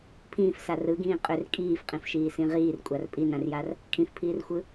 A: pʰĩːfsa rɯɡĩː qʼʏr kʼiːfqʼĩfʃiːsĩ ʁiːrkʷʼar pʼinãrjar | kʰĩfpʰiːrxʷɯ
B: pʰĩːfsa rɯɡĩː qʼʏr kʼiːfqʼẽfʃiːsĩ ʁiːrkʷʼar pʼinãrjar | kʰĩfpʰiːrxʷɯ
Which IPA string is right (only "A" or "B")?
A